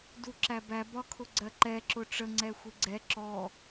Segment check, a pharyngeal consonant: absent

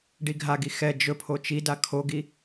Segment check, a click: absent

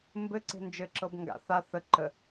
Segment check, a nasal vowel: absent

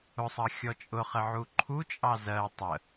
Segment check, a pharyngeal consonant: present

